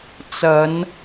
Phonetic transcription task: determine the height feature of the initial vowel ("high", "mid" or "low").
low